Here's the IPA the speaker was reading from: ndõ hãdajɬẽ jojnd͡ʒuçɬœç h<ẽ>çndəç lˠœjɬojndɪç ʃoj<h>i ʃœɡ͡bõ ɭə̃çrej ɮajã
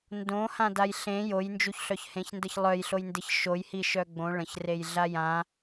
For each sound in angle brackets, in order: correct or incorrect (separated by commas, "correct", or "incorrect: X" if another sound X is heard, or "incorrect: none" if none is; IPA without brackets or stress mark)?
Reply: correct, correct